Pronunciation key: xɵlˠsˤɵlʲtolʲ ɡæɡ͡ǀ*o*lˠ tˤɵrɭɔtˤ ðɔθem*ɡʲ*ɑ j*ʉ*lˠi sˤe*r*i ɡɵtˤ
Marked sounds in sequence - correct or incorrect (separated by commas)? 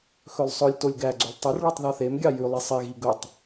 incorrect, correct, correct, incorrect